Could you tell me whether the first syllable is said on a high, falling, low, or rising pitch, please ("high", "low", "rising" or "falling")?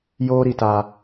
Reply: high